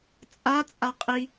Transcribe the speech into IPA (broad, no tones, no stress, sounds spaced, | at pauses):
t͡sʼ a t͡sʼ a qʼ i